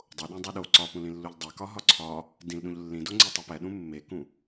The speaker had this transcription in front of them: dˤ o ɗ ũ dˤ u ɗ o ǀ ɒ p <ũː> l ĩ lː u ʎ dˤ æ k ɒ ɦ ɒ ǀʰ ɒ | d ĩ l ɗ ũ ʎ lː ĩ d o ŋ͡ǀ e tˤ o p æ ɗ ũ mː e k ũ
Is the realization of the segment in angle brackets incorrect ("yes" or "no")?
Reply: yes